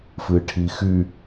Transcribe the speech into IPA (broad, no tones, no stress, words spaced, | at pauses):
fɨʈʰixy